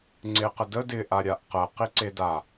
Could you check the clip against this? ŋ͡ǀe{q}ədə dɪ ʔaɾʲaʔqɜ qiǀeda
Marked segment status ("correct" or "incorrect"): correct